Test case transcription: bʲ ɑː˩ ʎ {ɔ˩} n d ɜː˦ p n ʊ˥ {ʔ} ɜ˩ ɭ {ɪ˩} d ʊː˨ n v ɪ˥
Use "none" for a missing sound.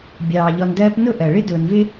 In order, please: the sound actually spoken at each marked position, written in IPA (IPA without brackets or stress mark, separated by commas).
ɔ˨, ʔ, ɪ˥